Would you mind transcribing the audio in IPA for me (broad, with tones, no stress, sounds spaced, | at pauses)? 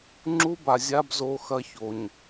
ŋ͡ǁ u˦ b a˨ zʲ a˦ b z o˨ x ɐ˦ ç o˨ ɲ